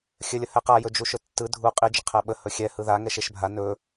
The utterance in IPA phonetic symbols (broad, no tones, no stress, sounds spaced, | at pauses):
xʲ ɘ lʲ ə h ɛ q a j ɵ d͡ʒ u ʃ ɵ tː ɯ dʱ u qʼ i d͡ʒ ə qʰ æ ɓ ə h ɵ xʲ ɛ h ɯ ð a ŋ ɛ ʃ e ʃ bʱ a n ɵ